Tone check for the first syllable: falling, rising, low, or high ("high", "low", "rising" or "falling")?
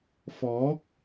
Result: rising